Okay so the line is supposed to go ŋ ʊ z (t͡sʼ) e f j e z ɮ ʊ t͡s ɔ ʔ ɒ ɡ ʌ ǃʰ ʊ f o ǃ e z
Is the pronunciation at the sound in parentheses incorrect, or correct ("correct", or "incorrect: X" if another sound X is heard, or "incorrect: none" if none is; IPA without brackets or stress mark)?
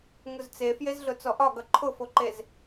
incorrect: t͡s